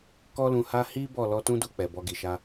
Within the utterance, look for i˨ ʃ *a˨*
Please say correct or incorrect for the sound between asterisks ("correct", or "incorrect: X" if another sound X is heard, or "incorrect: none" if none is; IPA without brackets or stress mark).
incorrect: a˧